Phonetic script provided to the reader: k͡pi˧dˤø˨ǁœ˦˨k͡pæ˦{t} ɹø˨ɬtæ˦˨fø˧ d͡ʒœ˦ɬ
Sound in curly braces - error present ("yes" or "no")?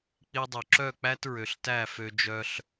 no